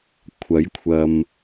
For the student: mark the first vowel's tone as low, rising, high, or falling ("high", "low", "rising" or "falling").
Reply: rising